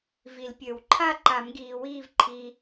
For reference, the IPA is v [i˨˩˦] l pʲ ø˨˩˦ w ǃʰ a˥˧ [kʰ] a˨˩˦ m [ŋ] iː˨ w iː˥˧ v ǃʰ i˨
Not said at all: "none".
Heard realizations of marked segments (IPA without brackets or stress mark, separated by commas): i˨˩˦, ǃ, ɡ